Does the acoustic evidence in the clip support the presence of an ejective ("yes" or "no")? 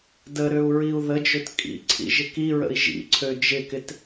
yes